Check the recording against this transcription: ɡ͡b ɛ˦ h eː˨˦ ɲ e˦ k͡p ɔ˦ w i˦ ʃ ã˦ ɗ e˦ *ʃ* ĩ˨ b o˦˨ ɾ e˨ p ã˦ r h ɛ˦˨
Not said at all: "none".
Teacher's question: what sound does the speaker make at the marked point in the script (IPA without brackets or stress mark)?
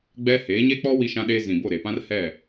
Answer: z